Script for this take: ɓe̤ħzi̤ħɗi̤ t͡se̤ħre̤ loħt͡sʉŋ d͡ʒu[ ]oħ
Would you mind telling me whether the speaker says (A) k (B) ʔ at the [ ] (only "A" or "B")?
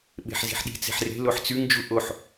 B